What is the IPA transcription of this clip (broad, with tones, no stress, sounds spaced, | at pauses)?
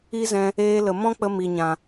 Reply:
i˦ z ɛ̃˧ | eː˧ l ə˨ m ɔ̃˦ k͡p ə˧ m i˨ ɲ ã˨